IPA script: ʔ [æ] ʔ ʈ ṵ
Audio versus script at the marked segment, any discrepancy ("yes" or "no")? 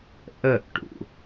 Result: yes